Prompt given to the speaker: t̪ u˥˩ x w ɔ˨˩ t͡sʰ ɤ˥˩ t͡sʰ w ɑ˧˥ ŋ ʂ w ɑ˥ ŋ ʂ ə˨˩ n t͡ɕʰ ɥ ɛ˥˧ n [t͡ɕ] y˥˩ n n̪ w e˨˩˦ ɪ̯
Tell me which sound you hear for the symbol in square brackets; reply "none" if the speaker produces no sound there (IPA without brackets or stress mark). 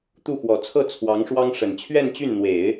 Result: t͡ɕ